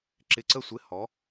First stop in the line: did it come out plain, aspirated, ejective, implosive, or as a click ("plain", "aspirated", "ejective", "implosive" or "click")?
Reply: click